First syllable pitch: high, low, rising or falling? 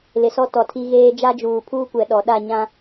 low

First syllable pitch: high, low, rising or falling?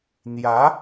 rising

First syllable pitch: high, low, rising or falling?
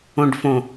low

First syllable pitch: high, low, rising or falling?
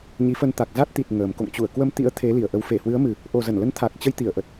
rising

